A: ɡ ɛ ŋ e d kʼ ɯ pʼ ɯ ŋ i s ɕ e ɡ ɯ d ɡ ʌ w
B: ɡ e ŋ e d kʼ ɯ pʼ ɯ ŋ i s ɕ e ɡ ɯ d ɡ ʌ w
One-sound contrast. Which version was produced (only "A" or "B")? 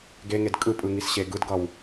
B